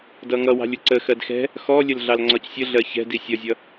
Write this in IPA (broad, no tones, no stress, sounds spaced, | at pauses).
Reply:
d ʌ ŋ ʌ w ɑ̤ lʲ ʊ ǀ ə x ɜ d x ɛ̤ | x ɔ lʲ ə l ɮ ɑ l ŋ͡ǀ ɒ c sʲ ə ɮ ɜ ç ɛ̤ d i sʲ ʌ zʲ ʌ